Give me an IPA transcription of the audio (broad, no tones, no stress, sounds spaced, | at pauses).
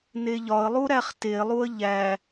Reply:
n e ʎ ɒ ə̯ lˠ u ɾ æ χ t e lˠ u ə̯ ʎ æ